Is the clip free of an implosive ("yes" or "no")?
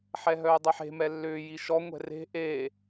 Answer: yes